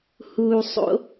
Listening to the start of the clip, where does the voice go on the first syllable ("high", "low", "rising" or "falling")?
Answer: low